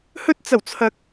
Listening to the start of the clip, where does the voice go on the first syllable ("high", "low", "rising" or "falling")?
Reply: high